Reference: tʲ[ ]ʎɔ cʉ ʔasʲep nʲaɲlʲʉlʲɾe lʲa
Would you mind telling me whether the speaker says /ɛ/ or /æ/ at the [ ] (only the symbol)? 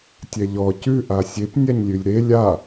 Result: ɛ